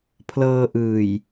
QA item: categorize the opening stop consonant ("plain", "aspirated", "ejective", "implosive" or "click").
aspirated